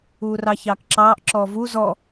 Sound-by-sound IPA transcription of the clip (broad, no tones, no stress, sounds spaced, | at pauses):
uː r ɑ ç ɑː k ǁ ɑː ʔ ǁ ɔː v u z ɔ